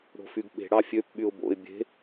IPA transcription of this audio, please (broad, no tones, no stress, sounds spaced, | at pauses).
ɽ o̤ f y ɡ ɓ e̤ ɽ ɑ fʲ ø p ɓ y ʊ̯ b o̰ ɪ̯ bʲ e̤